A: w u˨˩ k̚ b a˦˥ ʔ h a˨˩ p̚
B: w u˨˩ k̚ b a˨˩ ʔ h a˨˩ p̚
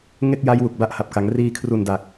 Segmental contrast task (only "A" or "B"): A